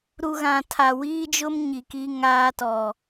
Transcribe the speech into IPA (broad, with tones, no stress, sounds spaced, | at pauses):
ɾ u˨ ɣ ã˨ tʰ a˨ w iː˦ d͡ʒ ʊ˦ m ɲ i˨ k i˦ ŋ aː˦ t ɔ˨